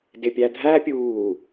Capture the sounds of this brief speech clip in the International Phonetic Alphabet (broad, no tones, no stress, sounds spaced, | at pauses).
d ɪ pʲ æ dʱ æ pʲ uː